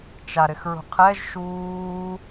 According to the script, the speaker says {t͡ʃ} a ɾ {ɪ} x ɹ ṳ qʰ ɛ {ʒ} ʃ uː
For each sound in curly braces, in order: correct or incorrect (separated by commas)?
correct, correct, correct